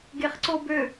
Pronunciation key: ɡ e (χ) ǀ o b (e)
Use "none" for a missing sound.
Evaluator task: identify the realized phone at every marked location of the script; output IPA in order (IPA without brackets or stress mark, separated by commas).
χ, ø